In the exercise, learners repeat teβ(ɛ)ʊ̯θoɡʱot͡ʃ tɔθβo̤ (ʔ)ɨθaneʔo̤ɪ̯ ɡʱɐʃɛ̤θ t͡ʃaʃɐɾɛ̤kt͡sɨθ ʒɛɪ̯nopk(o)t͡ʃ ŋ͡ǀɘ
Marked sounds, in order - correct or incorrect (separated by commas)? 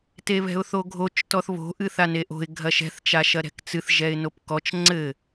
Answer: incorrect, correct, incorrect